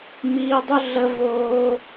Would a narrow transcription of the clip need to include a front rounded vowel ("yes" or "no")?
yes